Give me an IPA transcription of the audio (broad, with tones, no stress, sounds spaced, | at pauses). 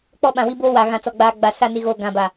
k͡p ɔ˦ ɓ ã˨ w i˦ b oː˦ w a˨ ɣ ã˨ t͡s ɔ˨ ɡ͡b aː˨ ɡ͡b a˨ s a˦˨ n i˨ ɣ oː˨ ɡ ã˨ b a˨